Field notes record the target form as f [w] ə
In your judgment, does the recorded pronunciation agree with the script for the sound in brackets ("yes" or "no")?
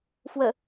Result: yes